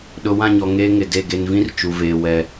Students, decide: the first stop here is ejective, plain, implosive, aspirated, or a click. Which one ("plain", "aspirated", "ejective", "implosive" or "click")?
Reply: implosive